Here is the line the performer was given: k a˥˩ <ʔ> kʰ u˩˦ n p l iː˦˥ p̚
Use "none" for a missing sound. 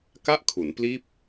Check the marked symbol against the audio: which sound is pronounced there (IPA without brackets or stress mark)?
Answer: ʔ